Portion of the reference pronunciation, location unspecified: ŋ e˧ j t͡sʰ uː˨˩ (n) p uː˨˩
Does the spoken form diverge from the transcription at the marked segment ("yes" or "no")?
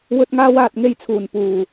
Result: no